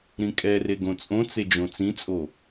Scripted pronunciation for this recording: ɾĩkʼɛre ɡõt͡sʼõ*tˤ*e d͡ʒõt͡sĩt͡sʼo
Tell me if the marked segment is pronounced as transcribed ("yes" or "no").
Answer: no